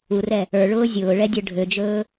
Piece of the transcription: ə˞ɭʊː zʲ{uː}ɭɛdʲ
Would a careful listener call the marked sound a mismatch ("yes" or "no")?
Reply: yes